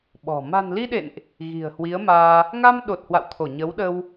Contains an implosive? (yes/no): yes